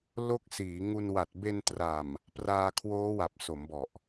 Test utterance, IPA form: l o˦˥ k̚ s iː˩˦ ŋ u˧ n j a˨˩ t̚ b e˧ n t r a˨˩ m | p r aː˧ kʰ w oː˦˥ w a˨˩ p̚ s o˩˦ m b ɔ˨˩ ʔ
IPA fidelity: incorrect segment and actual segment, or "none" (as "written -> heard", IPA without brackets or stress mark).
j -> w